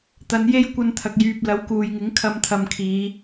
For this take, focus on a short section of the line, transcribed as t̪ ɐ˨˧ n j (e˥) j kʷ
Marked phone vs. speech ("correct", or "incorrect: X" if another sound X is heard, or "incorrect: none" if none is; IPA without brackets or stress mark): correct